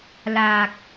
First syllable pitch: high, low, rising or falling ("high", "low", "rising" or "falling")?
low